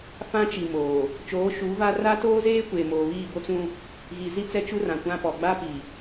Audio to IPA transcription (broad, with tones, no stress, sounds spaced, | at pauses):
f ã˦ t͡ʃ i˨ m oː˨ | t͡ʃ oː˨˦ ʃ uː˨˦ v a˦ r a˦ t oː˦ z eː˦ kʷ eː˨ m oː˨ β iː˦˨ b o˦ t͡s ũ˦ | ɣ i˨ z i˦ t͡s ɛ˦ t͡ʃ u˦ r ã˨ kʷ ã˦ p ɔ˨ ɡ͡b a˦ p i˨